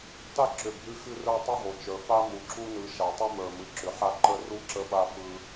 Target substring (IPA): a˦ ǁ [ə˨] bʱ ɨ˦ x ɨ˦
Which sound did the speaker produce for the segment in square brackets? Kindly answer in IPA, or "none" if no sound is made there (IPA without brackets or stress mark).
ʏ˨